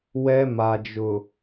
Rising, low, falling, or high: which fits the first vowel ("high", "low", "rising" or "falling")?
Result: high